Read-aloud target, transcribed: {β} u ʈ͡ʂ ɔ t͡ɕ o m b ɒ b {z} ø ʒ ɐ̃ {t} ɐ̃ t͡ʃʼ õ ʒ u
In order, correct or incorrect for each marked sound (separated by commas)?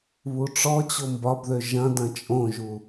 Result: correct, incorrect, incorrect